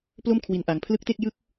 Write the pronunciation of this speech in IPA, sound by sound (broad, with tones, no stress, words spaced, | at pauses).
plo˥˩m kʰwi˦˥nʔa˧ŋ pʰlɯ˦˥k̚te˥˩k̚jɯ˥˩k̚